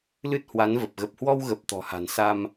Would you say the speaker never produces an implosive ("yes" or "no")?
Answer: yes